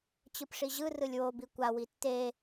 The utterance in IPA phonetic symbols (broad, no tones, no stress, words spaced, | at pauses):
t͡ɕɯpʂiʑɯ rɯlʲwo bikʷa witːe